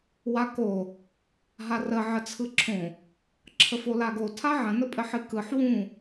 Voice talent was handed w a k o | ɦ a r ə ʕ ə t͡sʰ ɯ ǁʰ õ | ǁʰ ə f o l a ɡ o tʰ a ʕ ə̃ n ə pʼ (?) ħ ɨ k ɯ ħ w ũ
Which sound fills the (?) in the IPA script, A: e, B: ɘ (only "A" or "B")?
B